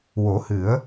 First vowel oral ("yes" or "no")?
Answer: yes